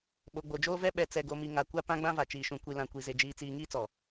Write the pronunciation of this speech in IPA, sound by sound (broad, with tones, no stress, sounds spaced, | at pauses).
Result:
ɓ o˨ ɡ͡b o˨ d͡ʒ oː˦ v ɛ˦ ɓ ɛ˨ t͡s ɛ˨ ɡ o˨ m i˨ ŋ a˨ kʷ a˦ p ã˦ ɡ͡b ã˦ v a˨ t͡ʃ iː˨ ʃ ũ˨ kʷ i˨ l ã˨ kʷ i˨ z e˨ d͡ʒ iː˨ t͡s iː˨ ŋ iː˦ t͡s ɔ˨